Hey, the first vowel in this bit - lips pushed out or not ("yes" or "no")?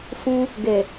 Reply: yes